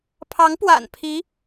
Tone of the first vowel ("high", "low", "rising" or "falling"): rising